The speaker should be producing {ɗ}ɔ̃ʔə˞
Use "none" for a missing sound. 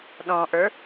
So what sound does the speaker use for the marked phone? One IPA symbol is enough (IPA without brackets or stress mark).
ɗ